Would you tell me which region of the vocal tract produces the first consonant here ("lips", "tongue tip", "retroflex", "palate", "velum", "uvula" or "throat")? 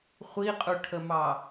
uvula